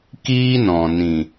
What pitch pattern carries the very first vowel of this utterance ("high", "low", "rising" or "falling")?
high